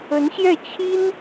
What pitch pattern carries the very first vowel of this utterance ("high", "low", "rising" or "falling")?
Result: rising